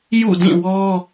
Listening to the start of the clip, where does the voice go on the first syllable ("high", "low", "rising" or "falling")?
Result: falling